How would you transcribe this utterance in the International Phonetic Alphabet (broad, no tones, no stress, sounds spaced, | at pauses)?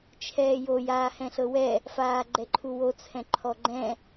t͡ʃʰ ɛː j o j aː h ɛ̃ ɬ ɤ w ɛ | f aː ɡ͡ǃ ɛ ǃʰ u w o t͡sʰ ɛ̃ ǃʰ ɔ ɡ͡ǃ ɛ̃